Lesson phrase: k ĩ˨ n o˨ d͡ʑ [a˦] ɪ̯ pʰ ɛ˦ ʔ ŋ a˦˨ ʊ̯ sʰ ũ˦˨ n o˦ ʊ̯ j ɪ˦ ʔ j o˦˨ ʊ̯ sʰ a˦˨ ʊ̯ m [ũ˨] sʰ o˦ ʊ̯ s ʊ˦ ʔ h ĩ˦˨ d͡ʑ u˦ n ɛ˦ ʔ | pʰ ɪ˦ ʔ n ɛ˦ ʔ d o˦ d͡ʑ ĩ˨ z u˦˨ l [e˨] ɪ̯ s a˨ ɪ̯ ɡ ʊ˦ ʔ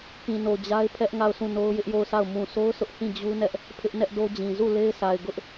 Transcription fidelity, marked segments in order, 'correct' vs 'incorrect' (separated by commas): correct, correct, incorrect